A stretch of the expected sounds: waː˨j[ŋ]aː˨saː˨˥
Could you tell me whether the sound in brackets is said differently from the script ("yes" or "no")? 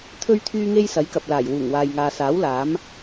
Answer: no